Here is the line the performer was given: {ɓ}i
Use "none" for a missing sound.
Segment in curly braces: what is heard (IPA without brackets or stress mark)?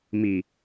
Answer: m